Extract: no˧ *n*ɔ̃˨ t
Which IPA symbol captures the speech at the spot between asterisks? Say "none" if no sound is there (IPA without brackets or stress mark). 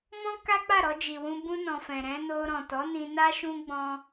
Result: ɾ